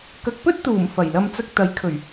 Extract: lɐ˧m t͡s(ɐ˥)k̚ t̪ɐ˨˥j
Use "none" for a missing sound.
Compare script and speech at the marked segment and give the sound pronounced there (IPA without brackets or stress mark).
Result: ɐ˧